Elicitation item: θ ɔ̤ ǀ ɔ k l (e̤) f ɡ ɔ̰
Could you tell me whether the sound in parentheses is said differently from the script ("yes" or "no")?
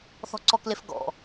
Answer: yes